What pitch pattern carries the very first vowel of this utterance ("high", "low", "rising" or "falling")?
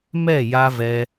falling